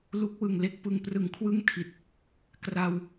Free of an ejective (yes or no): yes